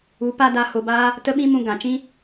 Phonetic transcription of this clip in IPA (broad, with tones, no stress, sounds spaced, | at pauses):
u˨˦ p a˦ d a˧ h o˧ b aː˦ | t ə˦ ɓ ĩ˦ m ũ˧ ɡ ã˨ t͡ʃ ĩ˦